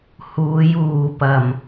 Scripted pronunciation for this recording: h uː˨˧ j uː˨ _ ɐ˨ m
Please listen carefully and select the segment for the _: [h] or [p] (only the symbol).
p